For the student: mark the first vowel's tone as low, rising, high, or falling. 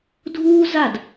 high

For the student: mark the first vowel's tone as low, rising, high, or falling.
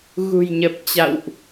low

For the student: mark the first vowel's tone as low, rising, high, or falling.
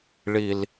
low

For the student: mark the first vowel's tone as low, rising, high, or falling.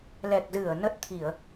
low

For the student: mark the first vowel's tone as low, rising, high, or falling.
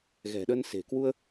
low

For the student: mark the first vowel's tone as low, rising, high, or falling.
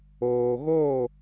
low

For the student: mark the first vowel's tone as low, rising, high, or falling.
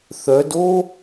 rising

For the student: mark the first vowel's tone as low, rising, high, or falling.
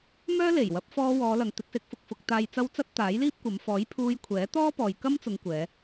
high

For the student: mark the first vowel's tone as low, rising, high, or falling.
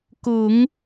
low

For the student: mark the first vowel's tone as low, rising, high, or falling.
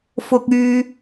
low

